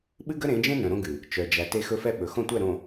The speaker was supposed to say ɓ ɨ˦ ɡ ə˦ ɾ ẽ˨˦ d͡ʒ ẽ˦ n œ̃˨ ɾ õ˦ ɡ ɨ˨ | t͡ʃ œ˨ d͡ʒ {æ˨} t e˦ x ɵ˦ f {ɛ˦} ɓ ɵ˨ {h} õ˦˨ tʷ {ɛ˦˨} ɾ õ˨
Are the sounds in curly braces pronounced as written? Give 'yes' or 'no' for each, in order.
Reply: yes, yes, no, yes

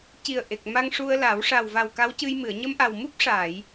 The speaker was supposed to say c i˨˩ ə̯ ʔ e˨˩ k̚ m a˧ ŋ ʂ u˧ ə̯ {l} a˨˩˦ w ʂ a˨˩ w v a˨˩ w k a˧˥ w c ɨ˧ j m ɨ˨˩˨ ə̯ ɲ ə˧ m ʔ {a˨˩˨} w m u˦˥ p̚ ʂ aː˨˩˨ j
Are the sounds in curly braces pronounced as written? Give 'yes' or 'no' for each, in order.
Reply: yes, no

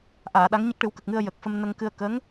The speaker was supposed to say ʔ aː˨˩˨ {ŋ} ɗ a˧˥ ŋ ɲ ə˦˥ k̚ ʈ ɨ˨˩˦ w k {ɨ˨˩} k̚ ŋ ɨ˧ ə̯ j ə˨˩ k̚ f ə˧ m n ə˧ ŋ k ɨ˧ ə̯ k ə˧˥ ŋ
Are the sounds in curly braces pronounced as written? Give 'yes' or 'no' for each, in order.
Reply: no, no

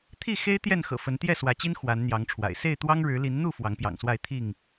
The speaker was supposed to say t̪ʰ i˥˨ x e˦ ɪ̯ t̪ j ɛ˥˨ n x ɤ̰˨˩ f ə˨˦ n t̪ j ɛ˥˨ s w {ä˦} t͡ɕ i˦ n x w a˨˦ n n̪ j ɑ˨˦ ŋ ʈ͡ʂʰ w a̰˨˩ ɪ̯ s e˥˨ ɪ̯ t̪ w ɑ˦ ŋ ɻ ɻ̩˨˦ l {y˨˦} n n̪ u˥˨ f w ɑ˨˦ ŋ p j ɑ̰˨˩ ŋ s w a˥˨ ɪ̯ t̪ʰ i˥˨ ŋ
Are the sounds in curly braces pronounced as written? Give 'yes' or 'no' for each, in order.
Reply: no, no

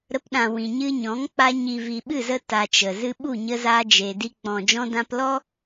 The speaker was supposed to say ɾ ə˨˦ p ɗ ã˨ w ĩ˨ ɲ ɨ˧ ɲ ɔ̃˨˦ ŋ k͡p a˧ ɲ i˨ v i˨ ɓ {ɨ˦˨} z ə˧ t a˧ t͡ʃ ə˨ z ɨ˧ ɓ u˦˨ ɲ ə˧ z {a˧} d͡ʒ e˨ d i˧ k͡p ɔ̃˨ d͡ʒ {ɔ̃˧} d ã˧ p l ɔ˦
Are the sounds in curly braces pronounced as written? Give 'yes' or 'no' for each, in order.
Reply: yes, yes, yes

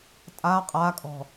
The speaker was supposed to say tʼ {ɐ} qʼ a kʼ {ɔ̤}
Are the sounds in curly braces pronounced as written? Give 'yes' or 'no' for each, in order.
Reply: no, yes

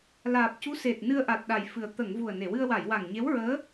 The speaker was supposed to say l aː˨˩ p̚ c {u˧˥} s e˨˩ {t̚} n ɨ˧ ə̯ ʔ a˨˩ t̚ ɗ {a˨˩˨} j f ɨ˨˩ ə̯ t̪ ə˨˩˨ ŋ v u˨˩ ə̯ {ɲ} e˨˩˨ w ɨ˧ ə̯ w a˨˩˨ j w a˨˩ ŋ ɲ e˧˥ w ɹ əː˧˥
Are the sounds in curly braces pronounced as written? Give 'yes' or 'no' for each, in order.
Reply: yes, yes, no, no

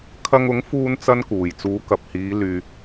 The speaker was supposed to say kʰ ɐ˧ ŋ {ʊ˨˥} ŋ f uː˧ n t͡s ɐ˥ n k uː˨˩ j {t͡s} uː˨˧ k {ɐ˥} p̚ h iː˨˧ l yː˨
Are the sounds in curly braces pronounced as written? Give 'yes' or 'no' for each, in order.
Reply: yes, yes, no

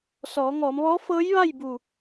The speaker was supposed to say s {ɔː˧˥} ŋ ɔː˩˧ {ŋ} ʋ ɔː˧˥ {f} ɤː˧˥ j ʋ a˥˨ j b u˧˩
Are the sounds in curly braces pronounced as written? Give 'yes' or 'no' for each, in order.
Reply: no, no, yes

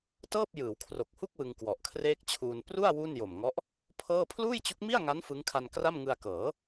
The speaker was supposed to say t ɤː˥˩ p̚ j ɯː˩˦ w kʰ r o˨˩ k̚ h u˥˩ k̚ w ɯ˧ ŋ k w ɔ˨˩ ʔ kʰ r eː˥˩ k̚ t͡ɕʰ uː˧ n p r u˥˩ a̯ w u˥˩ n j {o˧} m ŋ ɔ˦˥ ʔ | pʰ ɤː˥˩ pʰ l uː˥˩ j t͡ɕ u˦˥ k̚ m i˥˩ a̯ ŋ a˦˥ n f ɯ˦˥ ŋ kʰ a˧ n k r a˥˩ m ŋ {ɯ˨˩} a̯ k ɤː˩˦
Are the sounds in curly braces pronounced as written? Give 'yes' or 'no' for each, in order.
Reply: no, no

